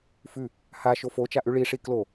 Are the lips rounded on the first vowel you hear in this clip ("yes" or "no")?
yes